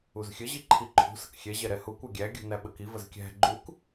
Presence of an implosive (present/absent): present